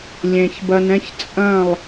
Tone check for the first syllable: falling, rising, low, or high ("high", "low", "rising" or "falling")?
low